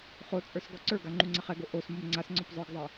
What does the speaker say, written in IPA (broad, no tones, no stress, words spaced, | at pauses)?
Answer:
χot͡sʼə˞s ɡɔǀə˞ɡa ŋ͡ǃuŋ͡ǀaχɛɡo ʔos momŋ͡ǀasŋ͡ǀɔp zˤə˞ɡzˤɛ